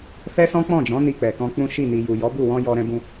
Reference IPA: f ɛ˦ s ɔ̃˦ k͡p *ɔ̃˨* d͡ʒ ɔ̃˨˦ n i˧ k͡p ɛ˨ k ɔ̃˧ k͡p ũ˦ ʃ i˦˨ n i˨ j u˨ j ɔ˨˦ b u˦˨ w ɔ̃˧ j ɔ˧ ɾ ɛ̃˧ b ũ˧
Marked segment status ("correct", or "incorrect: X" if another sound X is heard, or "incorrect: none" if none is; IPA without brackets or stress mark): incorrect: ɔ̃˦˨